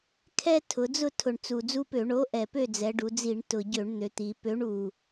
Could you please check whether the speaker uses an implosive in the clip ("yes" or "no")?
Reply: no